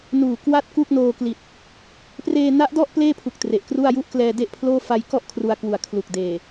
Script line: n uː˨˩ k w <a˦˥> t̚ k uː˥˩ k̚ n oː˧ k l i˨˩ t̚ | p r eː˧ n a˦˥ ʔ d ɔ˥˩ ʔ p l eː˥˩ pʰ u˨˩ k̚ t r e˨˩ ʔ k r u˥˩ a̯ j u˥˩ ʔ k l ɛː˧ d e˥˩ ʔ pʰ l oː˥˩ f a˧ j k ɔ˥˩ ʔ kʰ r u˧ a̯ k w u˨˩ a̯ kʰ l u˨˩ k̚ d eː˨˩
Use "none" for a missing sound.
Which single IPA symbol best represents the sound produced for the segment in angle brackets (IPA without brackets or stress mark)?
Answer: a˥˩